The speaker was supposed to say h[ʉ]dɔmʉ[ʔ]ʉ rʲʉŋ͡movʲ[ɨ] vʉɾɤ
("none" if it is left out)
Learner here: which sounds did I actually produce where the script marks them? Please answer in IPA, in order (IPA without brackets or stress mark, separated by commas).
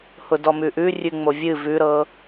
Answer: ʊ, ʔ, ɨ